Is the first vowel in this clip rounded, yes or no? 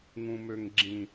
yes